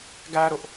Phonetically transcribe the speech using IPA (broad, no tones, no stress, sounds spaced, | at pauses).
ɡ æ ɾ ʊ ʔ